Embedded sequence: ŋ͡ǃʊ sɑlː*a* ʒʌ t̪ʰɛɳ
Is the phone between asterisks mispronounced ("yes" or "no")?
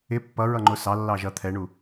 yes